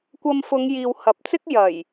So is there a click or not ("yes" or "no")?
no